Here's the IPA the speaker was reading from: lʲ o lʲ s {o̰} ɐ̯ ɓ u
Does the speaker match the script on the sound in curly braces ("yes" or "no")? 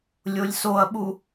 no